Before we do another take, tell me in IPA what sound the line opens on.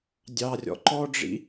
dʲ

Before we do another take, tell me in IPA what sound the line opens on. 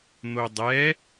n̪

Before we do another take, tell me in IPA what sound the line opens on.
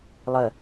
lˠ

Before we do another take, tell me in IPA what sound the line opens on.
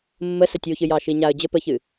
mː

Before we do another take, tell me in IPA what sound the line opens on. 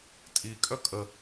tʼ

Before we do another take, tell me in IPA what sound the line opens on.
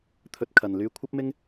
t̪ʰ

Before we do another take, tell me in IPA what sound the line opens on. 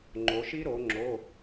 ŋ͡ǃ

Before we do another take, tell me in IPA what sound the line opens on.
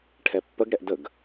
ʈʰ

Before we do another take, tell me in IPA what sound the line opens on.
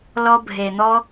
l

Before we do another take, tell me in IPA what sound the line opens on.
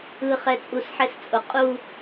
ɯ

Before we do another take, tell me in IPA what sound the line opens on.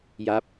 j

